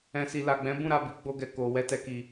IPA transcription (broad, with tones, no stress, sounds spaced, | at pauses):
ɛ̃˨ s i˨ l a˨ ɡ͡b ɛ̃˨˦ b ũ˦˨ ɾ a˨ b i˨˦ ɡ͡b o˧ ɡ ɛ˨ k o˨ w ɛ˧ t ɛ˨ k i˨